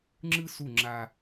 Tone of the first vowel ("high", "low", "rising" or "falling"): high